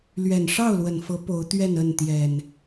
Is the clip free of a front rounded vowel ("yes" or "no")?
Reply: yes